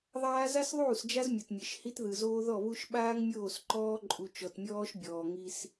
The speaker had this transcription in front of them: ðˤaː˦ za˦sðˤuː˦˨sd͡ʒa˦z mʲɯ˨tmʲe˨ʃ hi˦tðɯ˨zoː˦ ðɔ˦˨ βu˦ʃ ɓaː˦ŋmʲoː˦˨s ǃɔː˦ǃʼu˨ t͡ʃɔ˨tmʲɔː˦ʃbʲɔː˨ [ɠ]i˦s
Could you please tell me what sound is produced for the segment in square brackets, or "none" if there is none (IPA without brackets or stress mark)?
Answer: ŋ